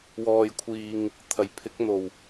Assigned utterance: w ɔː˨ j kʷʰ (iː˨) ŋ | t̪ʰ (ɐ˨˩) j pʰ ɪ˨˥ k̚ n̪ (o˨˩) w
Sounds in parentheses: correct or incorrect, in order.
correct, correct, correct

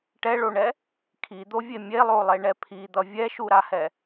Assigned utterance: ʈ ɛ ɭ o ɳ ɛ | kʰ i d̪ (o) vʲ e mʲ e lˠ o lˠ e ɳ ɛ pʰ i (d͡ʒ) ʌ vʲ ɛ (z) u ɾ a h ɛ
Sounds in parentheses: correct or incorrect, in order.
correct, incorrect: d̪, incorrect: ʃ

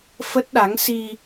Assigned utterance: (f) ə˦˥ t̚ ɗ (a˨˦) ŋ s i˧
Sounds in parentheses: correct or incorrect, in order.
correct, correct

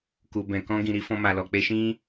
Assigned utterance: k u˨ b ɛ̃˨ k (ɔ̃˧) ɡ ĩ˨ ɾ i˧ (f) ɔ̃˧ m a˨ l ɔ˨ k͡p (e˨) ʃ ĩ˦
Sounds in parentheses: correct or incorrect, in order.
correct, correct, incorrect: e˧

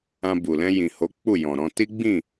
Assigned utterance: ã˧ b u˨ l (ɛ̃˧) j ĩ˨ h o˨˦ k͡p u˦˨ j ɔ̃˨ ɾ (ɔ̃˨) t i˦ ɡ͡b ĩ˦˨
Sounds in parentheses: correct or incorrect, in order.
correct, incorrect: ɔ̃˧

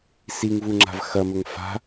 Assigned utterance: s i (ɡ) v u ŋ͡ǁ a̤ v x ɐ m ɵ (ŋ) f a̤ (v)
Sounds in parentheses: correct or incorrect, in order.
incorrect: ŋ, correct, incorrect: none

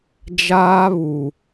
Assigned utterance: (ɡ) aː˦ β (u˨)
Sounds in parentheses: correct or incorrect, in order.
incorrect: d͡ʒ, correct

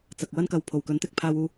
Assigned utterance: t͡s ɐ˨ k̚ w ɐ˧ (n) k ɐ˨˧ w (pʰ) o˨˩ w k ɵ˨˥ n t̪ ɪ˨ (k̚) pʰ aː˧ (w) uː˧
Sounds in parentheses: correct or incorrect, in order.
correct, correct, correct, correct

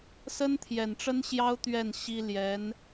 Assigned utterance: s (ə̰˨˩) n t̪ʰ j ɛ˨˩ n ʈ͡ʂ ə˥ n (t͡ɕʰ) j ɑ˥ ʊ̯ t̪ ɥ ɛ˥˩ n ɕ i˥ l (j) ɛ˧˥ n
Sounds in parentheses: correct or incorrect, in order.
incorrect: ə˥, incorrect: ɕ, correct

